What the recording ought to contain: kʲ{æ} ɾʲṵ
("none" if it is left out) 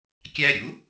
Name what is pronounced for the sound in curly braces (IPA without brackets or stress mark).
æ